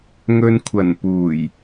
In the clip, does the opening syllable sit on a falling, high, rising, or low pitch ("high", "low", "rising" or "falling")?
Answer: low